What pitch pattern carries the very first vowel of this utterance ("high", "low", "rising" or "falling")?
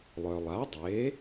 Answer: low